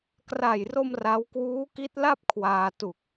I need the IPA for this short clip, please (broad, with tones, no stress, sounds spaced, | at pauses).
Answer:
k r a˨˩ j r o˧ m r a˦˥ w k w uː˦˥ k i˦˥ t̚ l a˥˩ p̚ kʰ w aː˧ t u˨˩ k̚